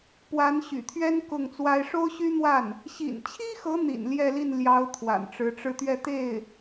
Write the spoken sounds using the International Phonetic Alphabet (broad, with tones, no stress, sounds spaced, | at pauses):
p w a˧˥ n ɕ y̰˨˩ t̪ʰ ɥ ɛ˥ n k ʊ˥˩ ŋ t͡s w a˥ ɪ̯ ʂ o˥ ʊ̯ ɕ y˥ n̪ w a˥˩ n | ɕ ḭ˨˩ n t͡ɕʰ i˥ x ɤ˧˥ n̪ ḭ˨˩ n l j ɛ˥˧ l i˥˩ n l j ɑ˧˥ ʊ̯ t̪ʰ w a̰˨˩ n ʈ͡ʂ ɻ̩˧˥ ʈ͡ʂ ɻ̩˥˧ t̪ ɥ ɛ˥˧ t̪ e˥˩ ɪ̯